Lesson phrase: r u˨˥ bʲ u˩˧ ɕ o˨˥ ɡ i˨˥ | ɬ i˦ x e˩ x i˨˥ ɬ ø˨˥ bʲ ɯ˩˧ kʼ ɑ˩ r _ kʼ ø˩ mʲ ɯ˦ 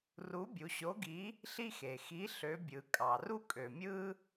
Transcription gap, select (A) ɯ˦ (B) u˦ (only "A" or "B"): B